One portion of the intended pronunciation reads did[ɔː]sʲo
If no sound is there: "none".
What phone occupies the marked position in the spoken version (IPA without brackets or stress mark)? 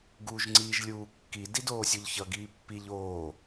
oː